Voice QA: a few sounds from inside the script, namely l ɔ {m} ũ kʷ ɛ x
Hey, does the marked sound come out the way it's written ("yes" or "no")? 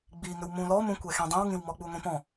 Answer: yes